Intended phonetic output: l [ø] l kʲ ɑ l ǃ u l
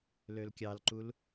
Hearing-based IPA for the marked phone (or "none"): ø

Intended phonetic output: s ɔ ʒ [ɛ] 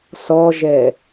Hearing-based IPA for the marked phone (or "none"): ɛ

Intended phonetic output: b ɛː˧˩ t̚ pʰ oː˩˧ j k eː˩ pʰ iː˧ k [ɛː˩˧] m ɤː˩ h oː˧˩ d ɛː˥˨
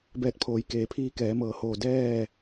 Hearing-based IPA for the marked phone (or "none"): ɛː˩˧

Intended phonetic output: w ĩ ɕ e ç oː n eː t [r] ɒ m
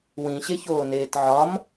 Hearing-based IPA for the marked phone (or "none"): ʕ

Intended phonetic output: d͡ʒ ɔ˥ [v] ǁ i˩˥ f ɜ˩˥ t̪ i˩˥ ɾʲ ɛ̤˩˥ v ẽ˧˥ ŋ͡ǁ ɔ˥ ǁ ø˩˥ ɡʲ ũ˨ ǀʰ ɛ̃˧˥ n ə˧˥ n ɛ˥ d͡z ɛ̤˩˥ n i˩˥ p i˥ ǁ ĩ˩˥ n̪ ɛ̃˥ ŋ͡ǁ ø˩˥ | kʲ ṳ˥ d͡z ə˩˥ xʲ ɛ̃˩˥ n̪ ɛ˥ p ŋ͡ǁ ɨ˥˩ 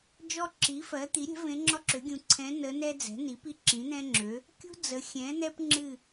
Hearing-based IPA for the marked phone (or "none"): none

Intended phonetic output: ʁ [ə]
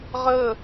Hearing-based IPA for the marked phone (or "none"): ə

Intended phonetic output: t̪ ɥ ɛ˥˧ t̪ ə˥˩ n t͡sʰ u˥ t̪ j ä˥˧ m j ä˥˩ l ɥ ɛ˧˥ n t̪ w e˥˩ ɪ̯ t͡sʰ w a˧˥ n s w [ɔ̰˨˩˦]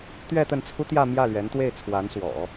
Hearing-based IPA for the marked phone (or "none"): ɔ̰˨˩˦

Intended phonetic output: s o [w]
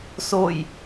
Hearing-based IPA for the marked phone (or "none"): j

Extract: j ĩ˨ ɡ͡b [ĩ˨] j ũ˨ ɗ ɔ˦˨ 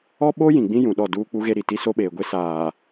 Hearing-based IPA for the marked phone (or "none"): ĩ˦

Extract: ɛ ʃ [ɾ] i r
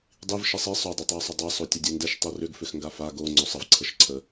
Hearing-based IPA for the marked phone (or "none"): tˤ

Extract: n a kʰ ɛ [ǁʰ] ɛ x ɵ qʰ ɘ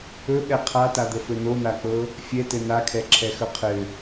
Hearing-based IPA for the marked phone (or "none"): ǁʰ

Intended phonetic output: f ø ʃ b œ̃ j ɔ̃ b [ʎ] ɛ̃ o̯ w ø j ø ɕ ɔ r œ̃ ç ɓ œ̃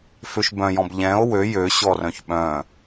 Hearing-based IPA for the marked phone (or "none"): ʎ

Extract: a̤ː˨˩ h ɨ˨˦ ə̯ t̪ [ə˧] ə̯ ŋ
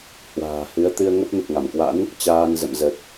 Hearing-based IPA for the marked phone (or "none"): ɨ˧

